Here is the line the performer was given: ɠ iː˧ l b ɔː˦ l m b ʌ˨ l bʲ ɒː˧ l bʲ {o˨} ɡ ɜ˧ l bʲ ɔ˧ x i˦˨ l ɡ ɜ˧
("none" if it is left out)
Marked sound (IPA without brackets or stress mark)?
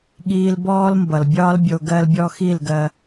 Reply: o˨